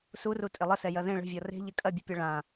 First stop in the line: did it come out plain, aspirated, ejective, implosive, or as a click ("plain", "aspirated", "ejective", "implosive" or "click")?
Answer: ejective